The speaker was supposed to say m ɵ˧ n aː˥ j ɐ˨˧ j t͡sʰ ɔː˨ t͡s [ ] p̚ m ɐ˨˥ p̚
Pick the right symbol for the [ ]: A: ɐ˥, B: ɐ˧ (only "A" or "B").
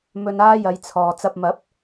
B